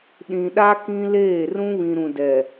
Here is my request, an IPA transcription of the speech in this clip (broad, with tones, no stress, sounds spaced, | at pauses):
ɗ ĩ˨ ɗ a˦ k ĩ˦ l eː˦˨ r ũ˦ β ĩ˨ ɾ ũ˨ d ɛ˨